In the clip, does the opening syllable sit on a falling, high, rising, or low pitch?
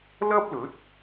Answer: high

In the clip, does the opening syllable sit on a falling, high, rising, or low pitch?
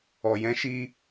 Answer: low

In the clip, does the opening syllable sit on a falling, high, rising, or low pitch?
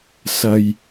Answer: low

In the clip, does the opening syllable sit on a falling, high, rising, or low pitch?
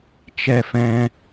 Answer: high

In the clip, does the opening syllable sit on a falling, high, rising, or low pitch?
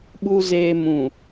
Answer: low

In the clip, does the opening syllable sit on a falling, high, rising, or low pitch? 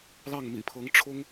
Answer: falling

